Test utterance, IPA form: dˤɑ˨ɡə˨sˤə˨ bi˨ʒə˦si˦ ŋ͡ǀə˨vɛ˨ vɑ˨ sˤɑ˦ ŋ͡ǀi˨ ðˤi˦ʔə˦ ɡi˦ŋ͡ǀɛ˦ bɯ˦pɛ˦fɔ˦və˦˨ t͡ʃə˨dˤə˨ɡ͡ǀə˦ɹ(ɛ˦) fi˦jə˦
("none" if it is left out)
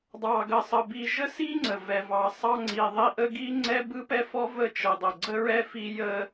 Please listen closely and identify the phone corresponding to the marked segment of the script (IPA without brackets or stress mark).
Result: ɛ˦